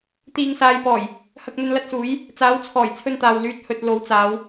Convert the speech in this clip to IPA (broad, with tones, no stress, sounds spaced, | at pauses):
t̪ iː˨ ŋ s aː˨ j p ɔː˨˩ j | h ɐ˧ k̚ n̪ ɵ˧ n l ɐ˧ t̚ s uː˨˥ j | t͡s aː˨˥ w t͡sʰ ɔː˨˩ j t͡sʰ ɵ˧ n t̪ aː˨ w l yː˧ t̚ h ɵ˧ t̚ l o˨˥ w t͡s aː˨˧ w